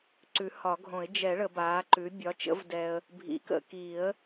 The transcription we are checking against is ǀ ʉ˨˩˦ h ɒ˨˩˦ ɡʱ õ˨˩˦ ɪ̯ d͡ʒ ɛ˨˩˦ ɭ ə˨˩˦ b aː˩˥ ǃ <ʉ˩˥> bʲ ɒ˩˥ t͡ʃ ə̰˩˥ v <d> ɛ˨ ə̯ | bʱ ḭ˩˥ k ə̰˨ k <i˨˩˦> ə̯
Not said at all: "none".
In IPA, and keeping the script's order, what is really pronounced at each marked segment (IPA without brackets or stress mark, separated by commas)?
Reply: ʉ˩˥, d, i˨˩˦